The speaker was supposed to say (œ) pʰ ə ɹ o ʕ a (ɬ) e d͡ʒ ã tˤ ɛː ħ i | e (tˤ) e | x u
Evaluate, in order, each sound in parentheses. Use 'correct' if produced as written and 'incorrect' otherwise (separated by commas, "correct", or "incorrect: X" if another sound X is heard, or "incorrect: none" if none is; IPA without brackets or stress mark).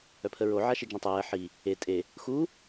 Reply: correct, incorrect: ʃ, incorrect: tʼ